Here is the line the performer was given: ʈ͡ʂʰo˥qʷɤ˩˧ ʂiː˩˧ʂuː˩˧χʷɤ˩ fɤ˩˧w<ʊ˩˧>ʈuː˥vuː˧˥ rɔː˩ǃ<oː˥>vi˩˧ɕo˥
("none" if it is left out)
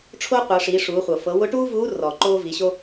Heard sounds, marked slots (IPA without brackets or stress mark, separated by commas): ʊ˧˥, oː˥